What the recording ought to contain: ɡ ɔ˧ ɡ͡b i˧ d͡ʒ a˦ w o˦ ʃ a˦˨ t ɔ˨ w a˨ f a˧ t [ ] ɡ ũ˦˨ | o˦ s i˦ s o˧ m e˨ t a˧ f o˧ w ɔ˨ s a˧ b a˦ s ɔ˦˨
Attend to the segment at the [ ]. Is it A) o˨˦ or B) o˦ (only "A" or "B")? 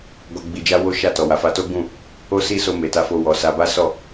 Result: B